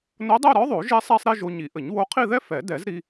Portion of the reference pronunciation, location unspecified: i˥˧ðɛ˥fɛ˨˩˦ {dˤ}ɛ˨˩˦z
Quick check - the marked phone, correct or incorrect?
incorrect